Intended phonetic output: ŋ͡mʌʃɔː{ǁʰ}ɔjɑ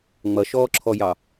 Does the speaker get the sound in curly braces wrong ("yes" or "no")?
no